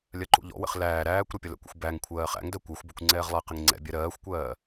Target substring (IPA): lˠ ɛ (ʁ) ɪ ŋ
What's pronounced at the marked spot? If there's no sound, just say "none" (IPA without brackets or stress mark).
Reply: q